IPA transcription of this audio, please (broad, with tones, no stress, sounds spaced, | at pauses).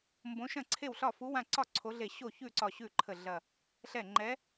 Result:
m b õ˨˦ ʃ ɐ̃˥˩ ǀʰ e˥˩ w ɬ ɒ˥˩ f u˨˦ w ã˧˩ ǀ ɒ˥˩ ǀʰ o˨˦ ɮ e˧˩ ɕ o˥˩ ç ʉ˥˩ ǀ ɒ˧˩ ɕ ʉ˥˩ ǃʰ ə˧˩ ɮ ɐ˧˩ | ɬ ɛ˥˩ ŋ͡ǃ ɛ˨˦